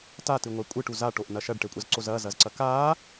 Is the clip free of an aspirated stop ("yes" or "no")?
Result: yes